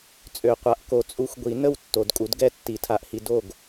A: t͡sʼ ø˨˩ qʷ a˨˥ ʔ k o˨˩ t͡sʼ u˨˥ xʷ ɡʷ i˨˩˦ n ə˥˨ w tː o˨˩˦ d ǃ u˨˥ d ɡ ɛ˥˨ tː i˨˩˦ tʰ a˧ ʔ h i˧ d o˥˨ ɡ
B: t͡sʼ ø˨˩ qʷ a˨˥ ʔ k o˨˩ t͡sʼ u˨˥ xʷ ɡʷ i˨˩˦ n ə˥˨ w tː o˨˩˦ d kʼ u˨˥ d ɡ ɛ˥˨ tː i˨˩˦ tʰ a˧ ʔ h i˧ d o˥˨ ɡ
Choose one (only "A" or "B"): B